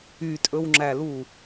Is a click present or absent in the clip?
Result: present